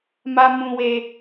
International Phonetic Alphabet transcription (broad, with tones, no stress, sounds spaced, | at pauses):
m a˦ m ũ˦ w e˦